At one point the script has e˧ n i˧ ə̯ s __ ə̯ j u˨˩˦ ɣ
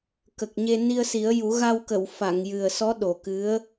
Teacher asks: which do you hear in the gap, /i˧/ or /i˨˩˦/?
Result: i˨˩˦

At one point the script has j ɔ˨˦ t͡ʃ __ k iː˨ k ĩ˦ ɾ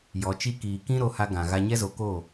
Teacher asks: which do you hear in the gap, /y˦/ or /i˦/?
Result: i˦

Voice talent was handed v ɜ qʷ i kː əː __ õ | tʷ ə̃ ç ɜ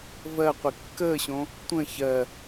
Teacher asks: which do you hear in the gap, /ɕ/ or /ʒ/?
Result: ɕ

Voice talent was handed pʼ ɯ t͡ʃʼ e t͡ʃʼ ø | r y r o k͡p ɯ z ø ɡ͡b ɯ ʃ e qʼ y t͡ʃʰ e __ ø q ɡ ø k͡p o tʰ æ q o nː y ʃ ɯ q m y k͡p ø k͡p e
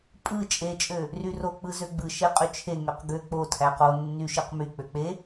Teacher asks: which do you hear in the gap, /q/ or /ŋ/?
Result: ŋ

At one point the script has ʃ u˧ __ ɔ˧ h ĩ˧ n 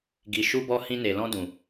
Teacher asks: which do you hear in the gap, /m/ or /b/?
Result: b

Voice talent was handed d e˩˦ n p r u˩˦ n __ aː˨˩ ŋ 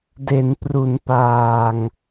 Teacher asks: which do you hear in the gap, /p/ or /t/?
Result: p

